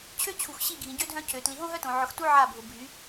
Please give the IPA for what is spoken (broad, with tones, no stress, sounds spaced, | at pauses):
t͡ɕʰ ø˦ t͡ɕʰ u˨ x ɕ i˦˨ ɡʱ ĩ˨ ɟ ø˦ dʱ œ̃˦ cʰ ø˨ t l i˨ ɦ õ˦ ɦ œ˦ t õ˨ ʕ ʊ˨ x t u˦ ʕ a˦˨ bʱ ʊ˨ bʱ y˨˦